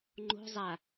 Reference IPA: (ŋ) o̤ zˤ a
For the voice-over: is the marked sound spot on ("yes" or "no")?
no